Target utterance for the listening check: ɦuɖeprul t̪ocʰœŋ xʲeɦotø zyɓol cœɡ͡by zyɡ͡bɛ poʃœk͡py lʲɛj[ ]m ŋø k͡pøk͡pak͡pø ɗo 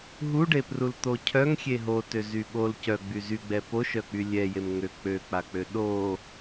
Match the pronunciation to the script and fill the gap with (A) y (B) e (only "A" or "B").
B